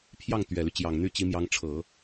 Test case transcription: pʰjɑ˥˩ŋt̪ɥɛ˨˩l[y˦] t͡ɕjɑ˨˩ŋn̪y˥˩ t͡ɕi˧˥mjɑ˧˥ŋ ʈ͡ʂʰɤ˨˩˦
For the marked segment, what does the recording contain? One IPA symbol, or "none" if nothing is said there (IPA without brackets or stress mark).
y˦